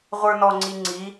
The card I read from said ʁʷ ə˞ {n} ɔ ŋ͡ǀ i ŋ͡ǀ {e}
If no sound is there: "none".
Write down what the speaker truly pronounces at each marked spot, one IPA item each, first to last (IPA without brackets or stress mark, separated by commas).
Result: n, i